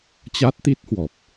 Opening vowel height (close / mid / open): open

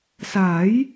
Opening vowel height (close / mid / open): open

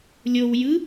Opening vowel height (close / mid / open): mid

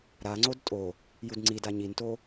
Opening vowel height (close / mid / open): open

